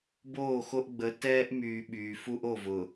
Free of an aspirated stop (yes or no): yes